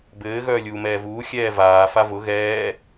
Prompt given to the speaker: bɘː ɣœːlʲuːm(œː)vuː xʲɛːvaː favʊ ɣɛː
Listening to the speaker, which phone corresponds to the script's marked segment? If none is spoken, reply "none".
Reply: ɛː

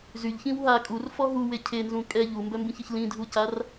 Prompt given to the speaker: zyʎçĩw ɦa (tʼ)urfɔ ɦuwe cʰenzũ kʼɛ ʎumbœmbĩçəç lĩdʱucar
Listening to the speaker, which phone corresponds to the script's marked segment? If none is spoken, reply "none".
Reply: kʼ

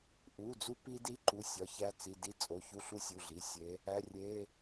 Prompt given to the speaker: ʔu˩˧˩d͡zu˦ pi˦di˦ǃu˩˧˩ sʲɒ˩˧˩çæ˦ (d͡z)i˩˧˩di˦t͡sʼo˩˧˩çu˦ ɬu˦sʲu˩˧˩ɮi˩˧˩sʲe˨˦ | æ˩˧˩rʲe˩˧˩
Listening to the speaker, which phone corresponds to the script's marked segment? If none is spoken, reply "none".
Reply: t͡s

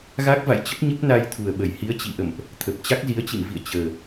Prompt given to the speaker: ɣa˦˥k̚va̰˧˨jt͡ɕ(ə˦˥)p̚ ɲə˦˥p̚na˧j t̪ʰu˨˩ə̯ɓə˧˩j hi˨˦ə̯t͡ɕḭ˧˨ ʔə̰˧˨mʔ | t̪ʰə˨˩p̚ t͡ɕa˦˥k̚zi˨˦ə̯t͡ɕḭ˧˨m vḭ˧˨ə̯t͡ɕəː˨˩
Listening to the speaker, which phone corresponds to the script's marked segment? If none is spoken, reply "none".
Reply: ə˦˥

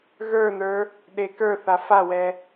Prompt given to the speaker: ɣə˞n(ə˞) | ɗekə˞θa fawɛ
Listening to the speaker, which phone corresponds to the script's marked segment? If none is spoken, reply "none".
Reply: ə˞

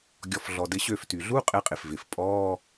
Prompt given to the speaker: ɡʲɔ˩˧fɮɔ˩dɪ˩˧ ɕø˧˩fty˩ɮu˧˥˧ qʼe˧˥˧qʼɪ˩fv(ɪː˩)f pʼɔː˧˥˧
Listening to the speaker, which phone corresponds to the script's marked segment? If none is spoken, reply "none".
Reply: ɪː˩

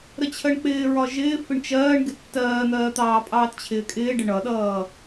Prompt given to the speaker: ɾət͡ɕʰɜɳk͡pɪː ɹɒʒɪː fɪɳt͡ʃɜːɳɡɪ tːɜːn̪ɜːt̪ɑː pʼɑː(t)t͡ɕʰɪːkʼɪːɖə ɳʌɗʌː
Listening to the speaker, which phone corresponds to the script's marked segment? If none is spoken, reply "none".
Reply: t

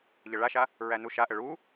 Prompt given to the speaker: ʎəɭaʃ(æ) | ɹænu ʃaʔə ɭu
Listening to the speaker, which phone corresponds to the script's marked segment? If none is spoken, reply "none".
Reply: a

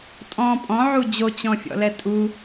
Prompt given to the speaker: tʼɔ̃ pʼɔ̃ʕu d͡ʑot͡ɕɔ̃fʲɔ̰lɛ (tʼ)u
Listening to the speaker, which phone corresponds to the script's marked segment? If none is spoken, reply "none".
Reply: tʼ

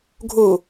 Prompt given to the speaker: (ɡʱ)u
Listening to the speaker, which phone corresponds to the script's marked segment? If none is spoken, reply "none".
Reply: ɡʱ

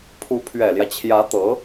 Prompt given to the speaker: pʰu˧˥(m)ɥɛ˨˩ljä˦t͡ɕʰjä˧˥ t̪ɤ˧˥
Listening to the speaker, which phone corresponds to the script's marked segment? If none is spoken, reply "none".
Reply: pʰ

